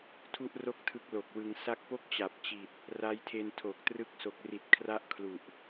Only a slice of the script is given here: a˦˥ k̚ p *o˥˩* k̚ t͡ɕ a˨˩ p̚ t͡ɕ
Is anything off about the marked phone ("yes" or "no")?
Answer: no